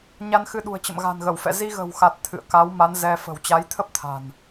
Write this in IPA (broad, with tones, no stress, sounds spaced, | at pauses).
ɲ a˧ n x ɨ˧ ɗ ṳ˨˩ ə̯ t͡ɕ ə̰˧˨ m ɣ a̤˨˩ n ɣ ə˧˩ w f ɛ̰˧˨ z i˧ ɣ ə̤˨˩ w x a˨˩ t̚ t̪ʰ ɨ̰˧˨ ə̯ k a˨˦ w m a˨˦ n z ɛ˧ f ə̤˨˩ w t͡ɕ a˨˦ j t̪ʰ ə˦˥ p̚ t̪ʰ a̤˨˩ n